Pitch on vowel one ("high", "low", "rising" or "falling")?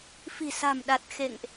low